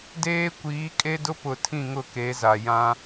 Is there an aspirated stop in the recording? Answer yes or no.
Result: yes